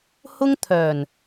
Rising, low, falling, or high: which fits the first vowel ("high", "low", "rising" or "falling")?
high